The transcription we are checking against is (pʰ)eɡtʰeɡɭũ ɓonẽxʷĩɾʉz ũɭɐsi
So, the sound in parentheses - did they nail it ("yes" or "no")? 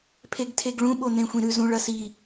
yes